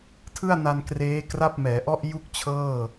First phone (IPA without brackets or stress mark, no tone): tʰ